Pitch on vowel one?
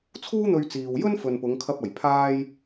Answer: high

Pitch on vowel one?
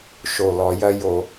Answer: low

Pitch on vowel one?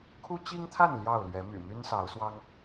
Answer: high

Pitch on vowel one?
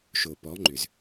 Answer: low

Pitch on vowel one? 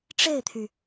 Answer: falling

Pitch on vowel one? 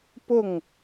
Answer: falling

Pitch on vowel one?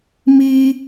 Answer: high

